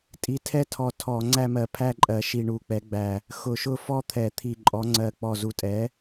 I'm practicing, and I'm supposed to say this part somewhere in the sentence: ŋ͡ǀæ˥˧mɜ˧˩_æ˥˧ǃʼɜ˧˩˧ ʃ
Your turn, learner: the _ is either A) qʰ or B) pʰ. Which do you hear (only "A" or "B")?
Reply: B